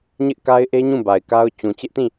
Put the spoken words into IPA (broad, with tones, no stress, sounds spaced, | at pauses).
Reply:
ɲ ɪ˦ ʔ k a˦ ɪ̯ ʔ e˦ ɲ ũ˦˨ b a˨ ɪ̯ k a˦ ʊ̯ t͡ɕ ũ˨ t͡ɕ ɪ˦ ʔ t ĩ˦˨